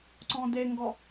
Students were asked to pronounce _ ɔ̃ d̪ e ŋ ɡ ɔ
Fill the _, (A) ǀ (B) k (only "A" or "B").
A